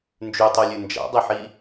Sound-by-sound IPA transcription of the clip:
n d͡ʒ ʉ tˤ o lʲ ʉ n d͡ʒ a̰ dˤ ɨ ħ i

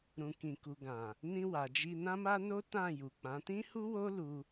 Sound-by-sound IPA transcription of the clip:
ɾ ũ˨ k ĩ˨ k u˨ ɡ ã˨ | n ĩ˧ w a˨ d͡ʒ i˧ n ã˦ m a˦ n o˦ t ã˦˨ j u˨ k͡p ã˨˦ t ĩ˦ h u˦ w o˦ l u˦

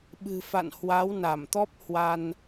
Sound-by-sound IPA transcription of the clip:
ɓ ɨ̤˨˩ f a̰˧˨ n h w a˨˦ w n a˧˩ m t̪ ɔ˦˥ p̚ h w a˧ n

